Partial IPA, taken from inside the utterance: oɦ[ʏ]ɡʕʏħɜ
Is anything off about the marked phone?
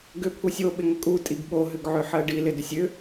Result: no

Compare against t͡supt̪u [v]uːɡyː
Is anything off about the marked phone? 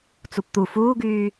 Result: yes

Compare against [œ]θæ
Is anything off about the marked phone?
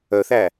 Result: no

